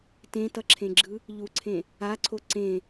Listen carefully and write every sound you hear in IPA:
t ẽ t ʌ ǁʰ ẽ ɡ͡ǁ ɯ | ʎ u ǀʰ ẽ | a ǀʰ o ǀ ẽ

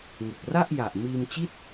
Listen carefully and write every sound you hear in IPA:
ŋ ɯ˨˩ k̚ r a˥˩ ʔ j a˨˩ ʔ m iː˧ m t͡ɕ i˥˩ t̚

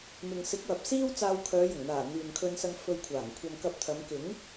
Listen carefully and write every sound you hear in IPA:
m ɪ˨ ŋ s ɪ˨˥ k̚ w ɐ˨ p̚ s iː˥ w t͡s aː˧ w kʰ œː˨˧ j ʊ˨˩ ŋ n̪ aː˨˩ n̪ yː˨ n kʰ ɵ˧ n s ɐ˧ ŋ f ɵ˧ ɥ kʷʰ aː˨˩ ŋ kʷʰ ɐ˧ m k ɐ˧ p̚ t̪ʰ ɐ˨˧ m k ɪ˨˥ ŋ

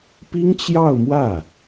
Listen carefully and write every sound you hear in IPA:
p i˥ ŋ t͡ɕ j ɑ˥˧ ʊ̯ m w ä˥˩

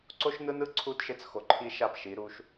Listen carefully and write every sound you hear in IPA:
ǀ o˦ ʃ n ɯ˦ n ɯ˦ ǀʰ u˦ d ʃ e˦ t͡s x o˨ ǃʰ i˦ ʃ a˦˨ p ʃ i˨˦ ɾ u˦ ʃ

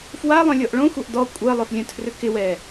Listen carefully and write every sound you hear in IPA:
f w a lˠ œ̃ lʲ ɔ ʔ ɭ õ xʷ a ʔ d ɔ kʷʼ ɜ lˠ œ f lʲ œ̃ tʰ r ʏ k ɪ w ɛ

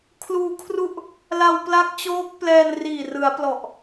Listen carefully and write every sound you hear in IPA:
kʰ l uː˧ kʰ r u˥˩ ʔ | l a˧ w p l a˦˥ k̚ t͡ɕ oː˦˥ k̚ p l ɛː˧ n r iː˨˩ r ɯ˩˦ a̯ p l ɔ˨˩ ʔ

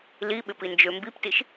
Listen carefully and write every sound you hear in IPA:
l i ɓ ɪ p i n d͡ʒ ø m b i p t i ʃ

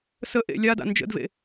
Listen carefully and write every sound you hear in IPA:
s ə ʔ ḛ lʲ a d a̰ n d͡ʒ ə̰ d v ḛ

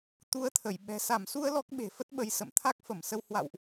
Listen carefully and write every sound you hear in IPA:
t̪ u˨˦ ə̯ t̪ʰ ə˧˩ j ɓ ɛ̤˨˩ s a˧˩ m s u˧ ə̯ l ɔ˦˥ k̚ ɓ e̤˨˩ f ə˦˥ t̚ ɓ ə˧ j s ə̰˧˨ m t̪ʰ a˦˥ k̚ f ə˧˩ m s ə˧ w h w a̰˧˨ w ʔ

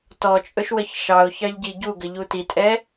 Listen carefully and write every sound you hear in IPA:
t ɔ t͡ʃʼ ɵ ʃ w ə ç ʃ ɑ ʊ̯ ç ɑ ʎ ɟ i ɟ u ɡ ə ʎ u t i tʼ ɛ

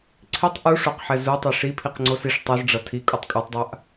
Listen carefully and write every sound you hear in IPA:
ǀʰ i tˤ ʔ u ʂ o q ħ ɛ z u tˤ e ʂ i pʰ i q ŋ͡ǀ o s i ʂ tˤ i z ɖ͡ʐ ʌ tʰ i kʼ u tˤ kʼ o tˤ dˤ a ʔ

